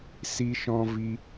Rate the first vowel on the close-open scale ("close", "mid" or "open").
close